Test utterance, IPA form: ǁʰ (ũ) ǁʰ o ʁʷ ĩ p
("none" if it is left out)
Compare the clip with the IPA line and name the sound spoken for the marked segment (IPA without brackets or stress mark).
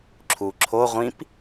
u